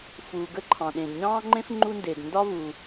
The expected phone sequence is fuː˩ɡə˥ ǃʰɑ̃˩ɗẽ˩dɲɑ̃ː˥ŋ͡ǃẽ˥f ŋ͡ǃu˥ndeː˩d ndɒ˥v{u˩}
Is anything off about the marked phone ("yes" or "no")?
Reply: no